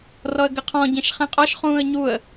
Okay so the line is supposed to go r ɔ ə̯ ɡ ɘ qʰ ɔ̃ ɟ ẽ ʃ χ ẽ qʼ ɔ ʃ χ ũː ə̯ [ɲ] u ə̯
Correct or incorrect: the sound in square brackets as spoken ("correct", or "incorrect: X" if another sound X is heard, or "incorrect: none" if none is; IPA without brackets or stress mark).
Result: correct